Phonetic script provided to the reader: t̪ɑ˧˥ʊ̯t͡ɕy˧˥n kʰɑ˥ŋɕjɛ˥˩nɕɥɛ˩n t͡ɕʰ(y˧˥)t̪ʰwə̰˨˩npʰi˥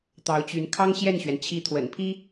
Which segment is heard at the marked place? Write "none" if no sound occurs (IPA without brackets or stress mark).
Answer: i˧˥